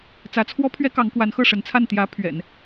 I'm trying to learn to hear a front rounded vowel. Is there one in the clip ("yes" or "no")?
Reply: no